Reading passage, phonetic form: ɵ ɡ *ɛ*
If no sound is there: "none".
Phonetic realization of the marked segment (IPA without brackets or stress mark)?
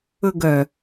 œ